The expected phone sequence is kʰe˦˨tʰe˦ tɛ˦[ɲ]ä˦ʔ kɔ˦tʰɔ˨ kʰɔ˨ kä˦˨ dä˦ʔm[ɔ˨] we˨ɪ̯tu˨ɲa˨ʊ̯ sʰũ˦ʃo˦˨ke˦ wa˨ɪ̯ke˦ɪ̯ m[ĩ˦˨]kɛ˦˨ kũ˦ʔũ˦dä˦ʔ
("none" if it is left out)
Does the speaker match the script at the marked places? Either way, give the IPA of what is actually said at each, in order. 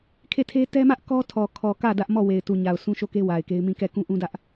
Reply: m, ɔ˦˨, ĩ˦˨

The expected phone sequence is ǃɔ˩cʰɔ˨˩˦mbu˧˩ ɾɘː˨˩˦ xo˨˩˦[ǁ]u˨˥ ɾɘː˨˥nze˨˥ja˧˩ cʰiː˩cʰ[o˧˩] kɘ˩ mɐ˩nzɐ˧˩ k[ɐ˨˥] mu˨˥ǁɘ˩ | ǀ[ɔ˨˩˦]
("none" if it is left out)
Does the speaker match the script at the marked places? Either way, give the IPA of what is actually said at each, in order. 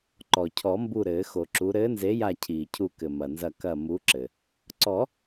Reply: ǁ, u˧˩, ɐ˧˩, ɔ˨˩˦

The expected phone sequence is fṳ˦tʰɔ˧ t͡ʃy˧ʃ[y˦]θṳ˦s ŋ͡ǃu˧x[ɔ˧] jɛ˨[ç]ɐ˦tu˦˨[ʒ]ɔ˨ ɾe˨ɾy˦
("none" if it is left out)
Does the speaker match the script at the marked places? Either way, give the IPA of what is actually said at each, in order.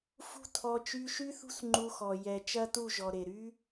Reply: y˦, ɔ˨, t͡ʃ, ʒ

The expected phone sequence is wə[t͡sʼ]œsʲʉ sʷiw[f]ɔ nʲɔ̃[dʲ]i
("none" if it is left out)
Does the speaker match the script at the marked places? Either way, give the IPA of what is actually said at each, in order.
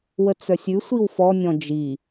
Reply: t͡s, f, d͡ʒ

